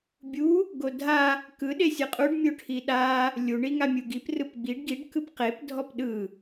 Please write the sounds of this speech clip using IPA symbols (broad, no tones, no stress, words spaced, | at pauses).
bʲu | ɡodʱa | kɯ ɗesʲɯqʼuɖ mʲoʈʰiɗa | lʲu ɳiŋamʲuɡip rɯpɡ͡biɖ ɡiɖ kɯpqep dʱɔpɗɯ